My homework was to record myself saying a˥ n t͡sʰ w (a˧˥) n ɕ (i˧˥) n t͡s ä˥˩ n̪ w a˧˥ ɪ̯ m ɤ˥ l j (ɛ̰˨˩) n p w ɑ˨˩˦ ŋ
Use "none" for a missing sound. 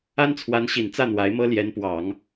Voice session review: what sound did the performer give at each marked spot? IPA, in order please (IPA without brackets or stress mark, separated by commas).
a˧˥, i˨˩, ɛ˧˥